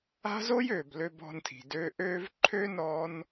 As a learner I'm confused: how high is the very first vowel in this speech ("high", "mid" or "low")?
low